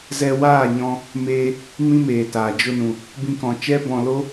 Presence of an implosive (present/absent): absent